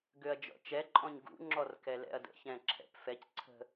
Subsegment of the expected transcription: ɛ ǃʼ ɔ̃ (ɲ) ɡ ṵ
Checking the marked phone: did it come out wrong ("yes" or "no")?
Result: no